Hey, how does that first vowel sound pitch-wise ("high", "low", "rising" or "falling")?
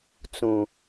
low